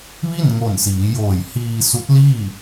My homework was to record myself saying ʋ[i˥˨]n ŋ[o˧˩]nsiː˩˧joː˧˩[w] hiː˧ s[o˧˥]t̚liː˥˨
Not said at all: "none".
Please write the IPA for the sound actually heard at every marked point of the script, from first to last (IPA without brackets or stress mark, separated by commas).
i˥˨, o˧˩, j, u˧˥